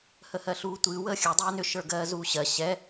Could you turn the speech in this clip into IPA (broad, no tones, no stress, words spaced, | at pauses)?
həhɜɬuːtʷɨː wəːxʲə˞ dˤuːnʏ ʃə˞ɡɜːzuːɕɜ ɕɛ